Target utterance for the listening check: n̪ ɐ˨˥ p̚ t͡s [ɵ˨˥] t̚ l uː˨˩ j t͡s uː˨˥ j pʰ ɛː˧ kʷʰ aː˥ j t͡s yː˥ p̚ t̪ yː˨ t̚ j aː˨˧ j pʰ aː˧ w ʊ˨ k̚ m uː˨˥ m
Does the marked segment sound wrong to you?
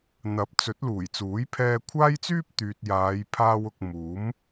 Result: no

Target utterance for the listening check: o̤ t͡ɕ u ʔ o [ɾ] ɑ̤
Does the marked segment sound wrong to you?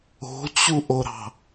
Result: no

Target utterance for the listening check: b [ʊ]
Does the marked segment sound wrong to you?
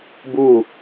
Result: yes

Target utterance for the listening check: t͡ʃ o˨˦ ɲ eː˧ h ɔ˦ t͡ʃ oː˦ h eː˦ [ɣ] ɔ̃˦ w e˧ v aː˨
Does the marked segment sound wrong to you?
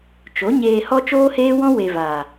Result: yes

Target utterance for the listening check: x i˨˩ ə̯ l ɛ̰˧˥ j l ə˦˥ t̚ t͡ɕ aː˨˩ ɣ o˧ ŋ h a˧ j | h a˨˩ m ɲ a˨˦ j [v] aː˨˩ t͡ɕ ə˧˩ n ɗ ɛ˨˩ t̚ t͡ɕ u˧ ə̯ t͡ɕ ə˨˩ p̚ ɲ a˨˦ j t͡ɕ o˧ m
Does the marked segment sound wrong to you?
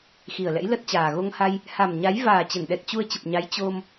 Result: no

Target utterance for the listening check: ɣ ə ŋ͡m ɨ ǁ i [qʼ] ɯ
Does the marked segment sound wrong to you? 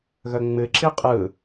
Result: no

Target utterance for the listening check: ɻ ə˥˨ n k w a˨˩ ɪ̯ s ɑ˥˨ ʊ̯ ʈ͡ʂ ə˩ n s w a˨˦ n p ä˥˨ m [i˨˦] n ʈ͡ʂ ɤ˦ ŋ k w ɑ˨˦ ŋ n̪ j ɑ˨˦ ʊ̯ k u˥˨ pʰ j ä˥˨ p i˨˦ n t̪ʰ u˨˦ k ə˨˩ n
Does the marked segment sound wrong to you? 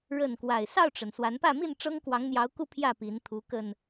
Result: yes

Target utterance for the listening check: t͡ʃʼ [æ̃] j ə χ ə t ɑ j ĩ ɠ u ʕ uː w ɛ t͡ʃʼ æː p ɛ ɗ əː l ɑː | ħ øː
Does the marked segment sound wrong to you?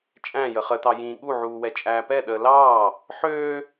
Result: no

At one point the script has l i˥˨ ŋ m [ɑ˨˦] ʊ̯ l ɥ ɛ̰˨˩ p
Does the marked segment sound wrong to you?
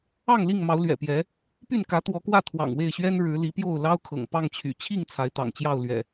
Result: no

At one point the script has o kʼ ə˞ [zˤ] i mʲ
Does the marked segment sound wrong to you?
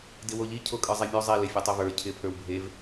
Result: no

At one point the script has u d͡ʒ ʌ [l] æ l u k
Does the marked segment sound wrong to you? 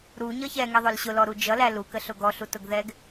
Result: no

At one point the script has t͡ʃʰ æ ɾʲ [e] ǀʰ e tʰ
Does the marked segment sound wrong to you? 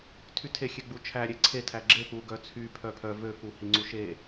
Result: no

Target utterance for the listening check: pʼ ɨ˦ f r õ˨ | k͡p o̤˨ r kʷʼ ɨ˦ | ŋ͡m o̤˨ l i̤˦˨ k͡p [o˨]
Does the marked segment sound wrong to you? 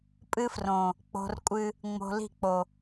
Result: no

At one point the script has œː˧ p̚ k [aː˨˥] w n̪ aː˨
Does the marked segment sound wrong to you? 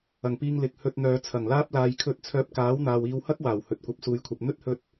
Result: no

